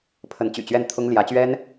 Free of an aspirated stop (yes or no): no